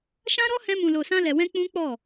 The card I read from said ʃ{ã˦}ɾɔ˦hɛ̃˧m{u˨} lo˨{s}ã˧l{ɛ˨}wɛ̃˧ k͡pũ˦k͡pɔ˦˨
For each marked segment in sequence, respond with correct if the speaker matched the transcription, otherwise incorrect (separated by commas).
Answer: correct, incorrect, correct, correct